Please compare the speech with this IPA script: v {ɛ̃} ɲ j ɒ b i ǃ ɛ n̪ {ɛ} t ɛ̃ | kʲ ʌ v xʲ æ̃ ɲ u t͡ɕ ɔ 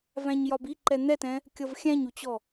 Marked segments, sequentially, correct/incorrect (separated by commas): incorrect, correct